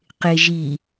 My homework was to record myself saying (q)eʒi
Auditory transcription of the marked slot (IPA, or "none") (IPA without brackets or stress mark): q